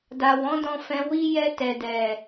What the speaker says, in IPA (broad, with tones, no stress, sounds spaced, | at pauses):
d a˨ w ɔ̃˨˦ d ɔ̃˧ f ɛ̃˧ w i˦ j ɛ˦ t ɛ˧ d ɛ˨